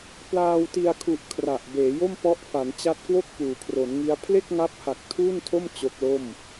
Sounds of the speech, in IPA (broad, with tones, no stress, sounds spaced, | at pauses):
p l aː˧ w t i˧ a̯ kʰ u˨˩ ʔ kʰ r a˨˩ ʔ b eː˩˦ j o˥˩ m p ɔ˦˥ ʔ f a˩˦ n t͡ɕ a˦˥ t̚ k w o˥˩ k̚ p uː˩˦ kʰ r o˩˦ n ŋ i˦˥ a̯ pʰ l e˥˩ k̚ ŋ a˦˥ p̚ h a˨˩ k̚ tʰ uː˥˩ n tʰ o˥˩ m t͡ɕ o˦˥ k̚ l o˥˩ m